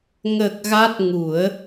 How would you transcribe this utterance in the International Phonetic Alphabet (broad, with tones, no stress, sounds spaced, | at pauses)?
ŋ ə˨˩ k̚ ɣ a˦˥ t̚ ŋ u˨˩˦ ə̯